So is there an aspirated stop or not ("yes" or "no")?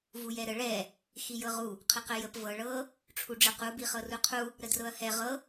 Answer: yes